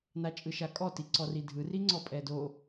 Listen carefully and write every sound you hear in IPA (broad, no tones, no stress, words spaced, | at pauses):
nat͡ʃʼɯʃakʼɔ tiǀɔridʱɯ riŋ͡ǀɔpʼɛdo